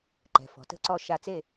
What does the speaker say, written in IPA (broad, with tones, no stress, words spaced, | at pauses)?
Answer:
ǃɛ̤˩˧ fɔ̤˩˧tə̤˥ǀɔ˥˧ ʃa˧t͡se˥˧